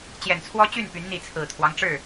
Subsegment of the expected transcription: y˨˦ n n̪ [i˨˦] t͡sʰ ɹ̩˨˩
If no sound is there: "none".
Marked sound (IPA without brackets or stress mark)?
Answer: i˨˦